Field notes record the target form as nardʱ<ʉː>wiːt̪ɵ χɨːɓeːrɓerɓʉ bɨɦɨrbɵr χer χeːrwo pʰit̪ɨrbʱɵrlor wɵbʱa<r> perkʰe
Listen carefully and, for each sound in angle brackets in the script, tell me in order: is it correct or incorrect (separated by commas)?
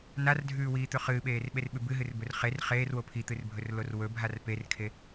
correct, correct